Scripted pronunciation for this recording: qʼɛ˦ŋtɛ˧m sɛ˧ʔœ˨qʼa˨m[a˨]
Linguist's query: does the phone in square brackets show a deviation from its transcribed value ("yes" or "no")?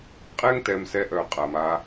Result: yes